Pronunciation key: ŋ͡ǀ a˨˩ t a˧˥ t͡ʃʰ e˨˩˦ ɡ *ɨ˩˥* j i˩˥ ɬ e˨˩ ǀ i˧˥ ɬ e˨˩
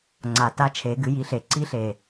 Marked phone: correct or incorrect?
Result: correct